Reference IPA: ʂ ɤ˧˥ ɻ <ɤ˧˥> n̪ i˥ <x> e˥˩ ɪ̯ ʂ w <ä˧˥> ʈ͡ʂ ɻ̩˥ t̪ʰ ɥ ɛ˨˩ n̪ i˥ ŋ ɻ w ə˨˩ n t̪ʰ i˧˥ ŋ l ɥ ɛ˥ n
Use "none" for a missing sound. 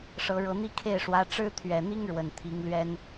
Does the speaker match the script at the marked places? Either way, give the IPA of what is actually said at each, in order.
ɤ˧˥, kʰ, ä˧˥

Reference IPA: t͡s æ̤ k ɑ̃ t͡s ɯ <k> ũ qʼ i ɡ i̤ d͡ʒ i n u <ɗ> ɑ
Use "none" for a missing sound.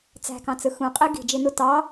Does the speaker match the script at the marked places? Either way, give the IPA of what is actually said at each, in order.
x, t

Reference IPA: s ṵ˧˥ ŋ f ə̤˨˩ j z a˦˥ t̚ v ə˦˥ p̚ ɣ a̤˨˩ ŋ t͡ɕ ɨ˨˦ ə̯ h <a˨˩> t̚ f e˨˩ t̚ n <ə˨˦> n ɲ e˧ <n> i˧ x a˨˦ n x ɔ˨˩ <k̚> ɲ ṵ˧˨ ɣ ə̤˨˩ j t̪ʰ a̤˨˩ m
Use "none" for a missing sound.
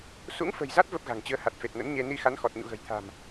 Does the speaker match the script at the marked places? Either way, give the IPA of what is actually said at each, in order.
a˨˩, ə̰˧˥, n, t̚

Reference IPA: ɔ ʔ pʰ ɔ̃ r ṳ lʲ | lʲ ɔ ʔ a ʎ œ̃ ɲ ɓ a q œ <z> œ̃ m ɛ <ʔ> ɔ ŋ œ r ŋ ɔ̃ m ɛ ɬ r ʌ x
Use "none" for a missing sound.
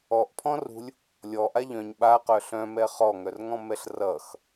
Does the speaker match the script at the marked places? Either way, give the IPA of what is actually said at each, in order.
ɬ, χ

